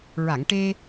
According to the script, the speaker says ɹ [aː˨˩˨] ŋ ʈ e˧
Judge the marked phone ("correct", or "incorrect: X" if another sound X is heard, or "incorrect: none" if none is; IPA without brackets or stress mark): incorrect: a˨˩˨